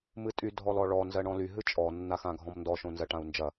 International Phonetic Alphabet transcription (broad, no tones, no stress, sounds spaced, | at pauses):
m ɨ tʼ y dʱ ɔ l ɔ ɭ ɔ n z ɜ ɳ ɔ̃ l y ɦ ɨ t͡ʃʼ ɔ nː a x ã ɡʱ ɔ̃ m n d ɔ ʃ õ n z ɜ ʈ ã u̯ n d͡ʒ ɐ